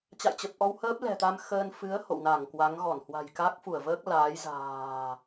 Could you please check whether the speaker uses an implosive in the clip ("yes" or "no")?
no